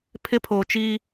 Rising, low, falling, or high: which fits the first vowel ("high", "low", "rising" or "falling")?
high